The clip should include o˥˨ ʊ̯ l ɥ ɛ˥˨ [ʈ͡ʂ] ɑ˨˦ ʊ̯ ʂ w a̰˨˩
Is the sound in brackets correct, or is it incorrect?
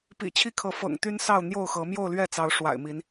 incorrect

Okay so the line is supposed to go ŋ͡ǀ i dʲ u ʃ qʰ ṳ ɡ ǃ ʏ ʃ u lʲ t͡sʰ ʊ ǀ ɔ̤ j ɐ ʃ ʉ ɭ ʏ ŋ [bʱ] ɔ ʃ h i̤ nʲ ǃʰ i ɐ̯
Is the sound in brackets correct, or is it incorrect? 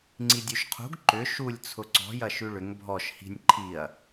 correct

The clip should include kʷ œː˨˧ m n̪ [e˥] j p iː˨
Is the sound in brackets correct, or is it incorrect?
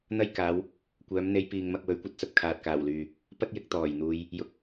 incorrect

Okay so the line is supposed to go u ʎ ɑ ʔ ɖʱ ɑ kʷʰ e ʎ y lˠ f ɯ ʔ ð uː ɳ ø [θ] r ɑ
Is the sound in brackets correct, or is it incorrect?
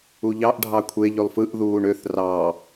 correct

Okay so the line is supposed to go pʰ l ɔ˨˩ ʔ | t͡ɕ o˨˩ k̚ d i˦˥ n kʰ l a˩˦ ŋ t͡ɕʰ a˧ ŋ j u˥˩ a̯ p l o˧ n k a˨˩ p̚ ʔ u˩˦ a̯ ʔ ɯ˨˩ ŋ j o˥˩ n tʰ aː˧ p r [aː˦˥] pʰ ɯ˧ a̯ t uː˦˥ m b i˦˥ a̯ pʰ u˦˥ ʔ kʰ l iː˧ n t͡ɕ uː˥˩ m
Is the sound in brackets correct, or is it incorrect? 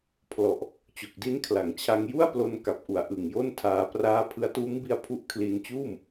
correct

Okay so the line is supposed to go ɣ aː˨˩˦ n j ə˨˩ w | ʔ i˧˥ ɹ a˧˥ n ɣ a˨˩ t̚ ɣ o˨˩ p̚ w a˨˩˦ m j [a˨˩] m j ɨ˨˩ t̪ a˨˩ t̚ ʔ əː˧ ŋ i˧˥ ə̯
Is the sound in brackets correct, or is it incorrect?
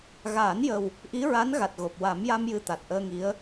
incorrect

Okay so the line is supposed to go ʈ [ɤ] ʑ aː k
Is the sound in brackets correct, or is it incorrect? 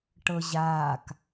correct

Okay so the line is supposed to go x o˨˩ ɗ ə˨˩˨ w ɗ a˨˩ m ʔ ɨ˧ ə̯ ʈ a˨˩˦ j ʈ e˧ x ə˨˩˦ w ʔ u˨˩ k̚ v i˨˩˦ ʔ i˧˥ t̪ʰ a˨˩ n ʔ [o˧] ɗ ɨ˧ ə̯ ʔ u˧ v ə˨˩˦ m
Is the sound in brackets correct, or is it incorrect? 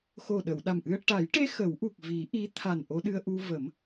correct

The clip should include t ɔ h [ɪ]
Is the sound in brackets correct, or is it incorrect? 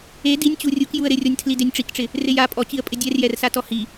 incorrect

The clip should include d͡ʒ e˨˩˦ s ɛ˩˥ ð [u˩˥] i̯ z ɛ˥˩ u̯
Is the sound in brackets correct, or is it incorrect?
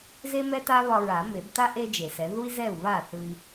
incorrect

